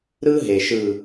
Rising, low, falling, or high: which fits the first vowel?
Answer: high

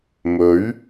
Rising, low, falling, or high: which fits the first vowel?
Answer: rising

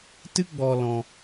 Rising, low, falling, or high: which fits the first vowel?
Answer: high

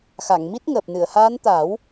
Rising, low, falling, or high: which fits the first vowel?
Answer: low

